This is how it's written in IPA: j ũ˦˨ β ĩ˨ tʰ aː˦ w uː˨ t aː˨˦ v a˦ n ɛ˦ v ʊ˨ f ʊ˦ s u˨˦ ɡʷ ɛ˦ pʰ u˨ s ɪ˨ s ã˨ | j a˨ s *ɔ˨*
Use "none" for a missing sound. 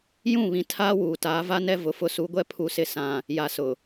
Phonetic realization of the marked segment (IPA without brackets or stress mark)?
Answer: ʊ˨